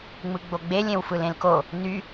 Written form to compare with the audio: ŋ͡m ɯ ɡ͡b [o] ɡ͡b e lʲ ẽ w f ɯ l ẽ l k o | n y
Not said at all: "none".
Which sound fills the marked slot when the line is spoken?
o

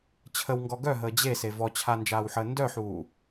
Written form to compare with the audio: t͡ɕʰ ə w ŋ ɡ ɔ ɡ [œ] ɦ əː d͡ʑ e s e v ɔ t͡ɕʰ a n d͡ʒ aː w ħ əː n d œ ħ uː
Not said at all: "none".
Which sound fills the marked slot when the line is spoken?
œ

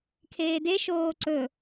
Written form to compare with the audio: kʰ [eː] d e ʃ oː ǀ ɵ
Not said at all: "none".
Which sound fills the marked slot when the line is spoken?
eː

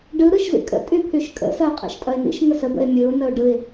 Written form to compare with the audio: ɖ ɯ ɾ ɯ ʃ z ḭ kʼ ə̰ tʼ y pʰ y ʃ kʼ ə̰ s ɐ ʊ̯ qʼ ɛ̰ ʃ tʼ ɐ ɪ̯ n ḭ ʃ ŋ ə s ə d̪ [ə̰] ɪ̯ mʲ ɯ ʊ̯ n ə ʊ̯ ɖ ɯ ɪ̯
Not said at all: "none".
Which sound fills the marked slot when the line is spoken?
ə̰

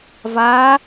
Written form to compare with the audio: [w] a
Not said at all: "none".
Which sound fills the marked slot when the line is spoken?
v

